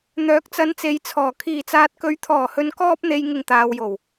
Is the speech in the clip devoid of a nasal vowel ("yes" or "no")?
yes